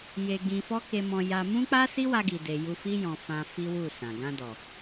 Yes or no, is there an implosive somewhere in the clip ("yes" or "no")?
no